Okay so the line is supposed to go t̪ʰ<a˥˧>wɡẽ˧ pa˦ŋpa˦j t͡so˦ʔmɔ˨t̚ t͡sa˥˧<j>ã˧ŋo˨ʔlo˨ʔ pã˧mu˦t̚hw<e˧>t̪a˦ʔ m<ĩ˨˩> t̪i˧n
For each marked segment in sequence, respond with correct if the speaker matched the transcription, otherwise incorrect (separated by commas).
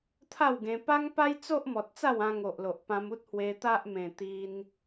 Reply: correct, incorrect, correct, incorrect